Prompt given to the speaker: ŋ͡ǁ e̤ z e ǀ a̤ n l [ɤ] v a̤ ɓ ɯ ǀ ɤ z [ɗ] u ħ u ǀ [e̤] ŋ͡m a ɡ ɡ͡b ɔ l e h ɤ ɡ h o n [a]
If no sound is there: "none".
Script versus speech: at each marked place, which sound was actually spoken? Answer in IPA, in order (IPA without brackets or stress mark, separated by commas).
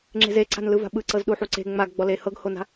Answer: ɯ, ɗ, e̤, a̤